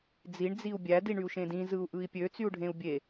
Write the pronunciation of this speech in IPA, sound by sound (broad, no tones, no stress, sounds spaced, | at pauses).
d͡z i ɳ d͡z i u̯ bʲ æ d i ɳ y u̯ ʃ ẽ d ĩ z ɯ u̯ ʔ ɯ i̯ pʲ ø t͡s y u̯ ɖʱ ẽ u̯ bʲ e